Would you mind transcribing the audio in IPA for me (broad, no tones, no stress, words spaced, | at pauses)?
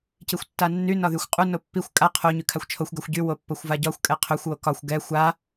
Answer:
cixʷtːanːy nɒðyxʷqʼu nopːixʷ kʼa qʰo ɲykʰaxʷt͡ʃʰoxʷ ɡaxʷɟy wopːoxʷvaɟɒxʷ kʼɛqʰøxʷ wokɒxʷ ɡɛ xʷa